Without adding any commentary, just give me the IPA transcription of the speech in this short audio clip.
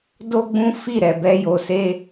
d o˦ ɡ͡b ũ˦ f i˦˨ ɾ ɛ˨ b ɛ˧ j o˨ s e˧

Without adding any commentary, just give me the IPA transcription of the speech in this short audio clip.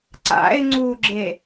ǀ a̰ ɪ̯ ŋ͡ǀ u ɡ͡ǁ e

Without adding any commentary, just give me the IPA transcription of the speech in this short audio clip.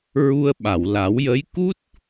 ɹ u˧ ə̯ ɓ a˨˩˨ w l a˨˩˦ w j ə˧˥ j k u˦˥ t̚

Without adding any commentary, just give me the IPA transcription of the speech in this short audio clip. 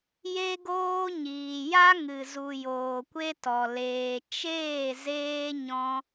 j e˧ ɡ oː˧ ɲ iː˨ j a˦ ŋ ɨ˨ z u˨ j oː˨ kʷ e˦ t ɔ˨ l eː˨ t͡ʃ eː˦˨ z eː˦ ɲ ɔ̃˧

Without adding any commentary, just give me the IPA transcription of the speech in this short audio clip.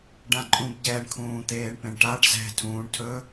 ɖ ã ǃʼ ũ b ɟ ɛ ɳ kʰ ũː t̪ eː ɳ p ẽ ɳ ʈ a ɖ z ɛ̤ tʰ ũː ɳ tʰ ɵ

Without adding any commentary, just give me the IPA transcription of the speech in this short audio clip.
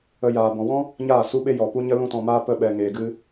ə˦ j aː˧ b ɔ̃˨ w ɔ̃˦ | ɲ aː˦˨ s u˦ ɓ e˦ j ɔ˨ p u˦ ɲ ə˦ l ũ˦ t ɔ̃˧ m aː˦ p ə˦ ɓ ɛ˧ ŋ eː˧ ɡ ɨ˦

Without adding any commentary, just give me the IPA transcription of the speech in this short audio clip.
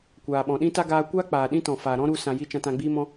kʷ aː˨ ɓ ɔ̃˨ ɗ ĩ˦ t a˦ ɡ aː˧ kʷ aː˦ k͡p aː˨ ɗ ĩ˦ t ɔ̃˨ f aː˨ ɾ ɔ̃˦ ɾ u˧ s ã˨ j i˧ t͡ʃ ã˧ t ã˧ ɡ͡b iː˧ m ɔ̃˧

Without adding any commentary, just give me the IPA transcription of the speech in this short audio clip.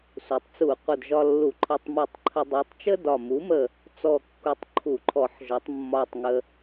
s u˩˥ tˤ t͡s u˧˩˧ qʷ ə˧˩ d ʒ ɒ˧ lː u˧˩˧ ǃʰ ɒ˧ tˤ m u˧˩ tˤ ǃʰ ə˧ dˤ u˩˥ tˤ t͡ʃ ə˥ d ɒ˧˩ m u˩˥ m ə˧˩ | t͡s ɔ˧˩ kː u˩˥ tˤ ǃʰ u˧˩˧ ǃʰ ɔ˧˩˧ ħ ʒ ɒ˩˥ tˤ mː ɒ˧˩ tˤ ŋ ə˧

